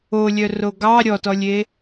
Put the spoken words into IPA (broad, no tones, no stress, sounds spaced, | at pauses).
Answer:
o lʲ œ r o ɡ ɑ ɾʲ ɔ t ɔ lʲ e